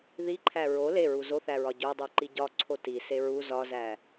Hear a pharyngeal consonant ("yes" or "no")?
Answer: no